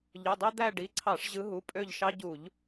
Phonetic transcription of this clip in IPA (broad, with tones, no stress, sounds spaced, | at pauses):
ʎ ø˩˧˩ dˤ e˦ d̪ æ˦˨ ɖ i˩˧˩ ǀʰ ɑ˧˩˧ ʂ ʑ ɯ˨˦ ɦ u˩˧˩ pʼ ø˦˨ ʎ ʃ ɑ˦ ɟ u˧˩˧ ʎ